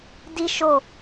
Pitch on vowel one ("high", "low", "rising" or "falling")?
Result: high